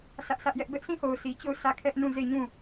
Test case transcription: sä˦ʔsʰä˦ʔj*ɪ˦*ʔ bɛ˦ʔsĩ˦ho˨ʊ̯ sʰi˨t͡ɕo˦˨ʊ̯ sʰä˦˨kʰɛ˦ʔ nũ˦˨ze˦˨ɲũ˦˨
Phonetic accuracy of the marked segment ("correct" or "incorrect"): incorrect